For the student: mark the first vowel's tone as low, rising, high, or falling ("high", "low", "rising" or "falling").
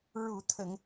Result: low